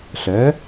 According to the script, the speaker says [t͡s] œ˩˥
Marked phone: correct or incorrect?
incorrect